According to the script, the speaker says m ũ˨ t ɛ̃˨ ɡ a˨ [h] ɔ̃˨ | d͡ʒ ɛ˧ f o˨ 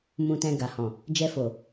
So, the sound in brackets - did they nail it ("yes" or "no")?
yes